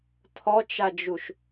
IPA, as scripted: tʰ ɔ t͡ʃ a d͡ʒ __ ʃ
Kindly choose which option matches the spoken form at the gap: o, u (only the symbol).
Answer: u